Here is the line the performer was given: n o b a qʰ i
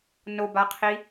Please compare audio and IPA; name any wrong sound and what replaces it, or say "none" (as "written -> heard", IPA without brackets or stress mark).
none